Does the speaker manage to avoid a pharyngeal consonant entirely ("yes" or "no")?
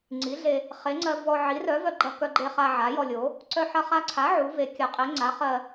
no